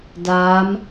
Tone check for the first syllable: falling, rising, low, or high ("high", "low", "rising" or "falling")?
rising